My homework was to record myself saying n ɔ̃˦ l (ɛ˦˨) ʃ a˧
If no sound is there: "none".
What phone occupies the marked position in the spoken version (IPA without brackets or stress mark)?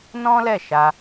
ɛ˦˨